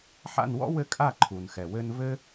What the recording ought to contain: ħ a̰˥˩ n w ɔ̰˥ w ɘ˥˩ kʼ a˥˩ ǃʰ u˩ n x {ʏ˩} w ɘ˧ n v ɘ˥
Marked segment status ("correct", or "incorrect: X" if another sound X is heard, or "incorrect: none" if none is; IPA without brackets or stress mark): incorrect: ɛ˩